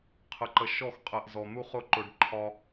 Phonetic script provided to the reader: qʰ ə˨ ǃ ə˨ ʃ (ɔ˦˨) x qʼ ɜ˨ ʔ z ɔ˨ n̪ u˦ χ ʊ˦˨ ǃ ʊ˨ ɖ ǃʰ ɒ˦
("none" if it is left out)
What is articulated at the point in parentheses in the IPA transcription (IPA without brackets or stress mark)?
ɔ˦˨